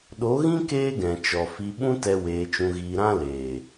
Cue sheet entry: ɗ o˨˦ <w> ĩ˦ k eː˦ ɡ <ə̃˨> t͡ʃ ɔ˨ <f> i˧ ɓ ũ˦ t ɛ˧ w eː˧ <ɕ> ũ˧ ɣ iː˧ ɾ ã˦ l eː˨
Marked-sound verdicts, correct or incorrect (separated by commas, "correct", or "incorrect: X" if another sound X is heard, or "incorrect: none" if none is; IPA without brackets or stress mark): incorrect: ɣ, incorrect: ɛ̃˨, correct, incorrect: t͡ʃ